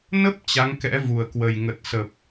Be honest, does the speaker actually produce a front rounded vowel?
no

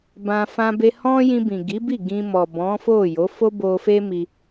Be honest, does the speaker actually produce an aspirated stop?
no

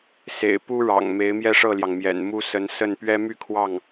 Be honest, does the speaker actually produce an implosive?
no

